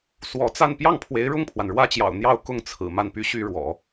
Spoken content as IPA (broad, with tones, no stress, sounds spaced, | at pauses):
s w ɔ˧˥ t͡s a˥˧ n p j ɑ˥˩ ŋ pʰ w e˧˥ ɪ̯ ɻ ʊ˥˩ ŋ pʰ w a˩ n ɻ w ä˥ t͡ɕ j ɑ̰˨˩ ʊ̯ n̪ j ɑ˥˧ ʊ̯ k ʊ˥˩ ŋ t͡sʰ ɹ̩˨˩ m a˥˩ n p y˥ ɕ y˥ ɻ w ɔ̰˨˩˦